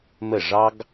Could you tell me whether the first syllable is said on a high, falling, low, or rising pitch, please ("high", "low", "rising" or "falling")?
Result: falling